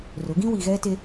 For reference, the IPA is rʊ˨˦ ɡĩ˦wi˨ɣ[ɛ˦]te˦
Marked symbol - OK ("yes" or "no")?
yes